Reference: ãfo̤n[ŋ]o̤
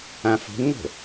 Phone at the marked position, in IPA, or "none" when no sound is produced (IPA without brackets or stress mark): ŋ